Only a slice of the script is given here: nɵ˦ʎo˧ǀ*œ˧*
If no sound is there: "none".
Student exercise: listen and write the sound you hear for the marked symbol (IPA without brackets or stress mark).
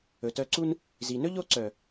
œ˨